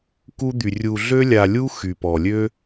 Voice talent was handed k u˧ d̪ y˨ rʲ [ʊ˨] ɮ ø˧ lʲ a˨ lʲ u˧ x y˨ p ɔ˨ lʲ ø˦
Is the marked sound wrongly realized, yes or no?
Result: yes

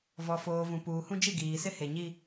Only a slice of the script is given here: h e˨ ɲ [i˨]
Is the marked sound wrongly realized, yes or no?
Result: yes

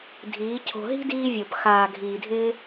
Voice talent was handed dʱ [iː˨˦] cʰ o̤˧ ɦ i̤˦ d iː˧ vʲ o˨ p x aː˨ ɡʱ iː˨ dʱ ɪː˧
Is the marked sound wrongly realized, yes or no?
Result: no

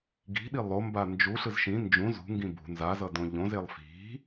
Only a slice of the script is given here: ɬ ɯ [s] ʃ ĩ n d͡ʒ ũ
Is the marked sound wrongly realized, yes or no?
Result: yes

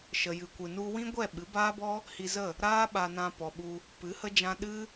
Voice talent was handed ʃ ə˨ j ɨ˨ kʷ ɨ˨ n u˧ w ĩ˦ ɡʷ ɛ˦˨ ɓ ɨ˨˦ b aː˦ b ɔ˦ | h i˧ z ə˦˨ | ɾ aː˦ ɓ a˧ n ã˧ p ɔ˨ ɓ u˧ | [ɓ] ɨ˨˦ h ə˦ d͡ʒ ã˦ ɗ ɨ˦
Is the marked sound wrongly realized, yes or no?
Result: yes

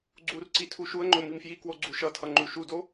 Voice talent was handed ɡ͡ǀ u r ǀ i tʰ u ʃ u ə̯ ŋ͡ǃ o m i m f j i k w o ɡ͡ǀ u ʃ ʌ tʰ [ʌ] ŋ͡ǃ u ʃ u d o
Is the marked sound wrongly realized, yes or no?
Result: no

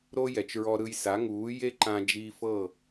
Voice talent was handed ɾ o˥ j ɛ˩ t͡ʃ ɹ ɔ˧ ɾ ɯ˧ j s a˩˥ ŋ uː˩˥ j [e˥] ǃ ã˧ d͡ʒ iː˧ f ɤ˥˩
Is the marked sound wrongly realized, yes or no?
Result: no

